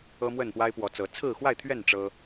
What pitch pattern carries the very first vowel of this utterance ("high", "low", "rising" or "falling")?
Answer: high